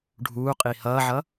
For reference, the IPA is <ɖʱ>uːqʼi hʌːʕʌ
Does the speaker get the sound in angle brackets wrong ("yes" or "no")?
no